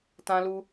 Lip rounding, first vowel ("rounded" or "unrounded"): unrounded